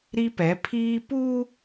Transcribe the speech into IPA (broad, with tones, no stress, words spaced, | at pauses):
ɾi˦pɛ˨˦ pʰiː˦ pu˦